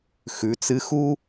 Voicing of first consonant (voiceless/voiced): voiceless